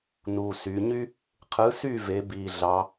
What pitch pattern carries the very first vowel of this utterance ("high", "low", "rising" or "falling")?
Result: low